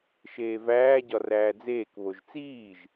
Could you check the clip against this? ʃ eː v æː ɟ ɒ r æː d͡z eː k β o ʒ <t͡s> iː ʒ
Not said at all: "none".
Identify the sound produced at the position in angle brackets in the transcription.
t͡s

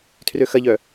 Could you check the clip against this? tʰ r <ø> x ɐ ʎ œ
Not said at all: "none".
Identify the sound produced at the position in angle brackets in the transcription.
ø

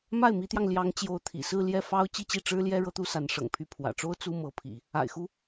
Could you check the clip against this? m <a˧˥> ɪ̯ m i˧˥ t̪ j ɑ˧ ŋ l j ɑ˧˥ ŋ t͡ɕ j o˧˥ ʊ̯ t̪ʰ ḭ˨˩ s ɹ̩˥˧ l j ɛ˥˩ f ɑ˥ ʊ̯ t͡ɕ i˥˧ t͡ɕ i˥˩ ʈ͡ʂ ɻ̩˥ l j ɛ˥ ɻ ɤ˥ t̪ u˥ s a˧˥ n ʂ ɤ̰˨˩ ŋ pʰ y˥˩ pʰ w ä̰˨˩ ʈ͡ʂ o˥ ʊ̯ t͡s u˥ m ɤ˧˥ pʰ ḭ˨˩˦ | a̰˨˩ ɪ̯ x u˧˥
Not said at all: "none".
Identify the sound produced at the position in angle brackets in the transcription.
a˥˩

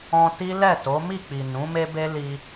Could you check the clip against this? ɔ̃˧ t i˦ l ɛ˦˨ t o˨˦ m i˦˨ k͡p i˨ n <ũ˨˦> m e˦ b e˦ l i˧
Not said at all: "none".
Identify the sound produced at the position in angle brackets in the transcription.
ũ˨˦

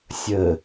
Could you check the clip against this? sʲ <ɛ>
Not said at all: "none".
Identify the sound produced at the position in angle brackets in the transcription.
ə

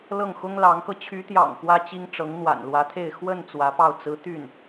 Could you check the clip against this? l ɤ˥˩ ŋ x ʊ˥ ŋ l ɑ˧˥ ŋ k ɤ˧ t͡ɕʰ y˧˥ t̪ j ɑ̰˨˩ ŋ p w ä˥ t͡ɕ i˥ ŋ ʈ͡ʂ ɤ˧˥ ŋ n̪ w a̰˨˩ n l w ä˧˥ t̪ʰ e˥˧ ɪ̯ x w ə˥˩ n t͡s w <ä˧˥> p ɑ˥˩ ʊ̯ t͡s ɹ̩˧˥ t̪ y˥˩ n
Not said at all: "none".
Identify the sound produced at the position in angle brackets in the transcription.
ä˧˥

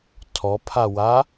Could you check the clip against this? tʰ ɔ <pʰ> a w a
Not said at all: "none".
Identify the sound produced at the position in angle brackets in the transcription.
pʰ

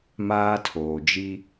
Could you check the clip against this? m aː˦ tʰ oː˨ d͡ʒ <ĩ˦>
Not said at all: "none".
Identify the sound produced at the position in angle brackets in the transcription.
i˦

